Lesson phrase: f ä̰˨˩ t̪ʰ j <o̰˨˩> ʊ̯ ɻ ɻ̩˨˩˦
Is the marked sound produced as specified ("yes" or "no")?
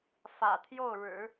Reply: no